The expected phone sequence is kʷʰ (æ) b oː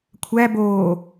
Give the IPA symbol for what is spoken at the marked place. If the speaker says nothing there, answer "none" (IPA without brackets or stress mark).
æ